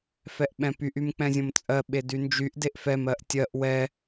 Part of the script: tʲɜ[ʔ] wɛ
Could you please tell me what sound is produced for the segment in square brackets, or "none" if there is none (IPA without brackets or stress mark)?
ʔ